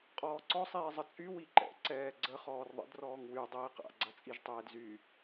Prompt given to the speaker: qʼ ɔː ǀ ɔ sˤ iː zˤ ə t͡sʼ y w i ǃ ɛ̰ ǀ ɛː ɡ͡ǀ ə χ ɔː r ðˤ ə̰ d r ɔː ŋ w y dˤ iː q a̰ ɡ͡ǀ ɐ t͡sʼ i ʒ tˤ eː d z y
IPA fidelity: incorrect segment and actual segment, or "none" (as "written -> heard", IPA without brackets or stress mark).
none